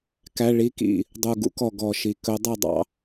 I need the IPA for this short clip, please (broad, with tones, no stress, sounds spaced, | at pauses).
k æ˩˧˩ ɭ i˨˦ k ḭ˩ | dˤ u˩ ɡ ṵ˨˦ k ɔ˩ ɡ ɔ˩ ʃ i˩ k ɵ˨˦ dˤ ɛ˥˩ dˤ ɑ̰˨˦